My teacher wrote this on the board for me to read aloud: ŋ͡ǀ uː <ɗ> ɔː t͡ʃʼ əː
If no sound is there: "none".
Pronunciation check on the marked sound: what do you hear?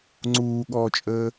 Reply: ɠ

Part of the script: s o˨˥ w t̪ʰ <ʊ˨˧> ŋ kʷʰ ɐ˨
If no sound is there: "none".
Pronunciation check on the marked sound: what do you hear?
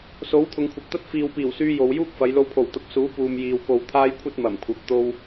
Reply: ʊ˨˧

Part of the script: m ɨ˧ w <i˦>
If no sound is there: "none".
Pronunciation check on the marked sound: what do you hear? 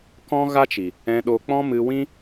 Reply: ĩ˦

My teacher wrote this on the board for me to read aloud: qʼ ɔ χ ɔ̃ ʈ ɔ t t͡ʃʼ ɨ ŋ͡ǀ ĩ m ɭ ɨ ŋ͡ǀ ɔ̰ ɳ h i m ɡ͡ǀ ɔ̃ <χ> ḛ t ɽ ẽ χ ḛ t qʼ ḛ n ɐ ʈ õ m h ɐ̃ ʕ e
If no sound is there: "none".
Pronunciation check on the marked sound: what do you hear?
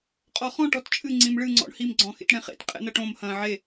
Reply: x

